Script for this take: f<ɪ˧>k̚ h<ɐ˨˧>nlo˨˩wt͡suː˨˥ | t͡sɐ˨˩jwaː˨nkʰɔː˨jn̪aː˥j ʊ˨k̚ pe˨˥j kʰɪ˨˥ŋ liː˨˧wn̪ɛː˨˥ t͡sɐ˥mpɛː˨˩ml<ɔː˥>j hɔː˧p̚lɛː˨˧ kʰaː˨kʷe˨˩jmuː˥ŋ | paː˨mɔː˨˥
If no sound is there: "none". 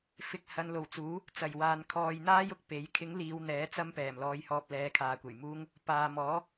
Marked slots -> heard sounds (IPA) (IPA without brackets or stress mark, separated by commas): ɪ˨, ɐ˨˧, ɔː˧